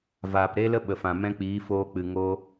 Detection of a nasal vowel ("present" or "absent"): present